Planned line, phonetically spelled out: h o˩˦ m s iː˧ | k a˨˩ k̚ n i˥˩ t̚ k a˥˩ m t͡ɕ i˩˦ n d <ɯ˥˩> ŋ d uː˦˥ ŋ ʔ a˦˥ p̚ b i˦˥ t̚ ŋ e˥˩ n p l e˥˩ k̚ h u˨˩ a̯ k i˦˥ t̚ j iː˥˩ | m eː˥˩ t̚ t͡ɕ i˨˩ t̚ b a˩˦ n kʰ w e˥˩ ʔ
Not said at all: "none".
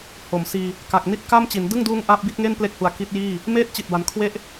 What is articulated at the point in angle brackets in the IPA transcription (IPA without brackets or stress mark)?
ɯ˥˩